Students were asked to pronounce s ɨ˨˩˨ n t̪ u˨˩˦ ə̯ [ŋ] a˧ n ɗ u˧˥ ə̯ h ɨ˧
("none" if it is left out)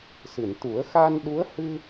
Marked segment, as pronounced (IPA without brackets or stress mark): x